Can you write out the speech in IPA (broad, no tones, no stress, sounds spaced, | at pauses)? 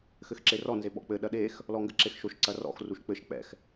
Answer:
x ɘ x ǁ e r ɔ n z e ɓ ɔ̰ k͡p ɘ ɗ ɐ ɗ e x | l ɔ ŋ ɡ ɘ ǁ e x ʃ o ʃ ǀ ɐ r ɔ̰ x r u ʃ k͡p ɘ ʃ k͡p ɛ̰ x